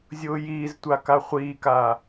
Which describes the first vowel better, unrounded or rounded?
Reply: rounded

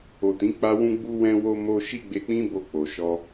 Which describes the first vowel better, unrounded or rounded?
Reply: rounded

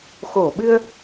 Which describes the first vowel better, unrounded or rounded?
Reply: rounded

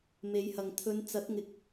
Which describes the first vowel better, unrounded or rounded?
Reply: unrounded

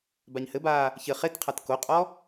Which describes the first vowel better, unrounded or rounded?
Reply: unrounded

